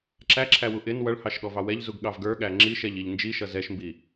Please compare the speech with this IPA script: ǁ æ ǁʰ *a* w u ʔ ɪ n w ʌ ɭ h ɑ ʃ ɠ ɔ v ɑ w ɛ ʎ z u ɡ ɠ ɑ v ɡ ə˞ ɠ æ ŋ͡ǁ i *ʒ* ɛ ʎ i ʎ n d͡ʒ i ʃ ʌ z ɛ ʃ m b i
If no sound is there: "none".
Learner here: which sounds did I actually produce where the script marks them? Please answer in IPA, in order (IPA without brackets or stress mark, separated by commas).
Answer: æ, ʃ